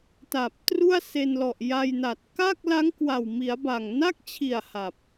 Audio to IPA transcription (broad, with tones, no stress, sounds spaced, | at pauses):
t a˨˩ p̚ t r u˥˩ a̯ s e˧ n l ɔ˨˩ ʔ j a˧ j n a˨˩ t̚ k a˥˩ k̚ l a˦˥ ŋ k w a˨˩ w m i˩˦ a̯ b a˨˩ ŋ n a˥˩ k̚ t͡ɕʰ i˨˩ a̯ h a˨˩ p̚